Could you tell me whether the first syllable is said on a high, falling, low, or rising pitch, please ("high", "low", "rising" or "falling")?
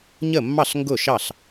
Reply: falling